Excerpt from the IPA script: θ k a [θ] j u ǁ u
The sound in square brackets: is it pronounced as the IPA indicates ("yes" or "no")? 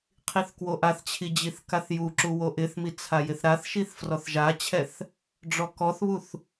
yes